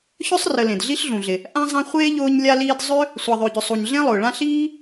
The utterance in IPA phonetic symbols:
ç œ˥ sˤ r ə˨ l ẽ˩ d ɮ i˦ ɬ ɮ ũ˩ ɮ ɪ˩ | ʔ ã˦ zˤ ã˦ χʷ eː˥ ʎ ʊː˦ ɲ lʲ a˦ l iː˦ d zˤ ø˥ | sʷ a˨ ðˤ ø˨ ɟ ʏ˨ sˤ u˨ ɲ ɮ ẽ˥ lˠ ʊː˩ ɭ ã˥ ɬ iː˥

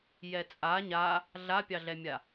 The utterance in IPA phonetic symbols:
j ɛ t͡sʼ a ɲ a | ɮ a pʲ ɑ ɮ ɛ mʲ a

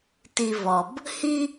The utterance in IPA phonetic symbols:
t i˧ v ɔ˩ b | h i˥

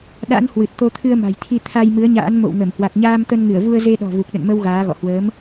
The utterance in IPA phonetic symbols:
ɗ a̰˧˥ n h w ɨ˨˩ t̚ t̪ o˧ t̪ʰ ɨ˧ ə̯ m a̤˨˩ j t̪ʰ i˧ t̪ʰ a˧ j m ɨ˨˦ ə̯ ɲ a̰ː˧˥ n m o̰˧˨ w ŋ ə˧˩ m h w a˨˩ k̚ ɲ aː˧ m t̪ ə˧ n ŋ ɨ˧˩ ə̯ v u˧ ə̯ z e˧ ɗ ɔ̤˨˩ v u˨˩ k̚ ɗ ə̰˧˨ n m ə˧ w ɣ aː˨˦ ɣ ɔ̰˧˨ h w əː˨˦ m

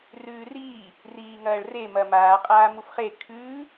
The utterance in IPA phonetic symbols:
r ʉː r iː | r iː ŋ ɐː ɭ r e m ɐ m aː qʼ aː m u f χ e kʰ ʉː

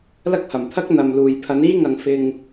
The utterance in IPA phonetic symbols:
l ɐ˥ k̚ h ɐ˨˩ m t̪ʰ ɐ˥ k̚ n̪ ɐ˨ m l uː˨ j pʰ ɐ˨˧ n iː˥ ŋ ɐ˨ ŋ f ɪ˧ ŋ

